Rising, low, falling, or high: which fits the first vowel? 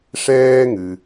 high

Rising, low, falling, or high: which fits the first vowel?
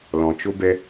low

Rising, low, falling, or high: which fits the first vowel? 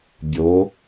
rising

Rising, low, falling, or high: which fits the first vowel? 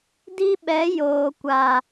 high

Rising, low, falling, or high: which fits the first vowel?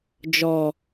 low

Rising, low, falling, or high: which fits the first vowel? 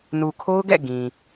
low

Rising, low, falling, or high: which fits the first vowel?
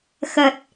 low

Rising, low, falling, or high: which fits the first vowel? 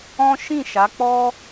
high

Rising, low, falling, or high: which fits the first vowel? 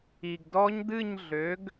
low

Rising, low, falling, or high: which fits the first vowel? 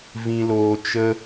low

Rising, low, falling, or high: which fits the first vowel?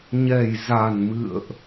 low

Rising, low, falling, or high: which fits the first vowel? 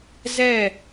falling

